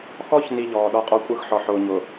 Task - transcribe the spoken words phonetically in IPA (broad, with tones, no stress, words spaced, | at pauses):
xɔ˦çni˨ ʎɔː˨ɗɔ˦qʼɔ˦kʷʼɯ˦x ħɔ˨ħʊː˨ɲʊ˨